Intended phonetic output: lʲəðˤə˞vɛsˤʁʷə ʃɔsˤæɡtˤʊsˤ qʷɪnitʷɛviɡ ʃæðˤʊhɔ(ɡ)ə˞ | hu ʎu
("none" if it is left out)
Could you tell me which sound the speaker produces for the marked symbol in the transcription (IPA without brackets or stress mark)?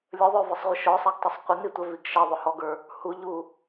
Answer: ɡ